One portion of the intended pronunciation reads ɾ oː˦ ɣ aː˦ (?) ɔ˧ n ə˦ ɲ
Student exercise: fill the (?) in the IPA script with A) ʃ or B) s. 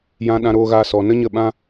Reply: B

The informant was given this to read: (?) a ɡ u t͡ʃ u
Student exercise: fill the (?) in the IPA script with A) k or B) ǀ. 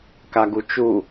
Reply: A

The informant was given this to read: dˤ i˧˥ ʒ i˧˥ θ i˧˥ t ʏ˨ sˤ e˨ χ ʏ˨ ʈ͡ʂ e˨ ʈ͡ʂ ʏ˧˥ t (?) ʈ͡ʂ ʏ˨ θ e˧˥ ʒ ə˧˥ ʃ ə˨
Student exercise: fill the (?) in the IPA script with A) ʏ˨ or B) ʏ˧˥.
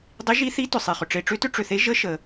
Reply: B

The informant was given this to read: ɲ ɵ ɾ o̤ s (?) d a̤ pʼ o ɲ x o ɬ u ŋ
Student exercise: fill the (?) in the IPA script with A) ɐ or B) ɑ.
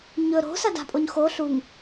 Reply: A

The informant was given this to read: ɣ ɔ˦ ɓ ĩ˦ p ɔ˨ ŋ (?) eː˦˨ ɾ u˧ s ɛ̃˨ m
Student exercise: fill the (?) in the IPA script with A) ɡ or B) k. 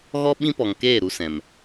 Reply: B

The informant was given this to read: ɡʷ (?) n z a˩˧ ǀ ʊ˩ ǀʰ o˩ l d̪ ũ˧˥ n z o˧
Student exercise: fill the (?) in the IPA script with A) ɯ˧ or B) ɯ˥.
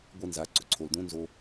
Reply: A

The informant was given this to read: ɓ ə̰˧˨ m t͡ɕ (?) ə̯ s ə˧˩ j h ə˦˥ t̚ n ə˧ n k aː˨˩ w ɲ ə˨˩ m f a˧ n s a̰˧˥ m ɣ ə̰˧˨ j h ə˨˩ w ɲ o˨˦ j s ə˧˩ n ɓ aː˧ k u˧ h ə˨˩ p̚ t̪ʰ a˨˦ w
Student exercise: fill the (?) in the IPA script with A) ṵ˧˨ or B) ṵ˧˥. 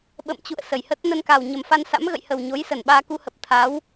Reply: A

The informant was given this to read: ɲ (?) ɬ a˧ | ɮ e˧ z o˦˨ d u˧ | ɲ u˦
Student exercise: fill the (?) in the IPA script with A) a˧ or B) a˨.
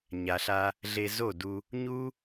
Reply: B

